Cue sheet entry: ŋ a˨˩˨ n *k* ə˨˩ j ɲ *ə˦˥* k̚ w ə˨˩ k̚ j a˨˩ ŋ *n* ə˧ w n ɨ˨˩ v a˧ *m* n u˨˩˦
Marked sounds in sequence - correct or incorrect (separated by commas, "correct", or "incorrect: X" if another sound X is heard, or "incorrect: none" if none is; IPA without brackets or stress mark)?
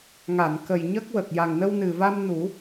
correct, correct, correct, correct